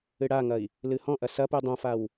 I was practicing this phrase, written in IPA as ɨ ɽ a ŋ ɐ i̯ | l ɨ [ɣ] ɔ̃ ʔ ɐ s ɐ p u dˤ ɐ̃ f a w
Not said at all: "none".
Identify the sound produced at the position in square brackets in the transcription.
h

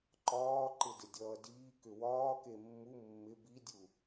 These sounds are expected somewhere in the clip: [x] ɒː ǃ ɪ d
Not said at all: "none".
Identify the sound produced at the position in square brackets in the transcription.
ǃ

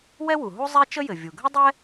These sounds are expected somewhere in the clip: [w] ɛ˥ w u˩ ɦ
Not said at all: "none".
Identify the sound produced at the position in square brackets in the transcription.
w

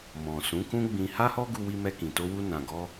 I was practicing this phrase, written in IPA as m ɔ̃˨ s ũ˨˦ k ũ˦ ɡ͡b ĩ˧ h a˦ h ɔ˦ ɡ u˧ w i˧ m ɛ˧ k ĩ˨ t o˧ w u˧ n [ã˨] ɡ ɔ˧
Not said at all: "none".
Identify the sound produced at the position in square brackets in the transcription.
ã˨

